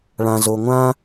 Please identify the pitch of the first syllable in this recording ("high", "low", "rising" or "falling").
low